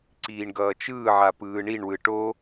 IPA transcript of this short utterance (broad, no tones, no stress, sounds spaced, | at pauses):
ǀ iː ɳ ɡ ʌː t͡ʃ ɯː ʕ a p ɯː ɳ i ɳ w ɯ ʈ o